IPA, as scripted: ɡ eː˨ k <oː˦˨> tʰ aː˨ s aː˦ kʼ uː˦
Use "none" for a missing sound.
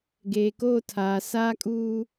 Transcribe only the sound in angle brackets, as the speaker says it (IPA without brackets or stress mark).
oː˦˨